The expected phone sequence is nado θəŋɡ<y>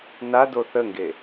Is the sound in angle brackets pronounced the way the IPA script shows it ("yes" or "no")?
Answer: no